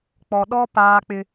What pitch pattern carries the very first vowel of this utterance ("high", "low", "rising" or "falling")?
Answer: low